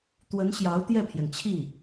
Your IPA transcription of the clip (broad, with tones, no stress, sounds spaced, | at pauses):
t̪ w ə˧˥ n ɕ j ɑ˧˥ ʊ̯ t̪ j ɛ˥˩ pʰ j ɛ˩ n t͡ɕʰ i˥˩